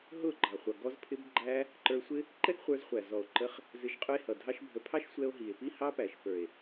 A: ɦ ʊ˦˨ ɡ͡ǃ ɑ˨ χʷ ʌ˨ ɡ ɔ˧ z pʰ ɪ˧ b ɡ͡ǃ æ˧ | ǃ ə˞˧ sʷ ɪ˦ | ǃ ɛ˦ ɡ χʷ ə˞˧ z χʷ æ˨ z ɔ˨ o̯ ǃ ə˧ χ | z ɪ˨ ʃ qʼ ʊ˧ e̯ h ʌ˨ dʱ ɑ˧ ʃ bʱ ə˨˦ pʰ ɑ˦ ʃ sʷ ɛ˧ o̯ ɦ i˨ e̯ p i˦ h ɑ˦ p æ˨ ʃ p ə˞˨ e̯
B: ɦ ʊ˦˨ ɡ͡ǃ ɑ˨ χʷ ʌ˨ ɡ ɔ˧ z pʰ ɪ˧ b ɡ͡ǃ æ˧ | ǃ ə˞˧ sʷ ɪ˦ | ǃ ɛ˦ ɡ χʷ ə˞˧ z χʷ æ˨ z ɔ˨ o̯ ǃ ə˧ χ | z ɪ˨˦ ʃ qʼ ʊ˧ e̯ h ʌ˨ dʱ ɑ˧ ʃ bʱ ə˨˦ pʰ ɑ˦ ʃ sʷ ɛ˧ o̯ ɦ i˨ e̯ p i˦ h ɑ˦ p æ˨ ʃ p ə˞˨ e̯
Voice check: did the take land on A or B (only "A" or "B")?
B